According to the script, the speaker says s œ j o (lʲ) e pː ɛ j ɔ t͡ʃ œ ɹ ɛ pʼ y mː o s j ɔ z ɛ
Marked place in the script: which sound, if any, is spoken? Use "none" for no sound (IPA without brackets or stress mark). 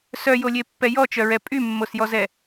lʲ